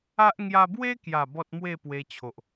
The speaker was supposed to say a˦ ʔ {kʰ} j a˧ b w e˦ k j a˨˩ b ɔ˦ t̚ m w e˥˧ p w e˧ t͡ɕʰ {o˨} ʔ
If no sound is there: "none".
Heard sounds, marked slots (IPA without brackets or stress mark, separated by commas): ŋ, o˨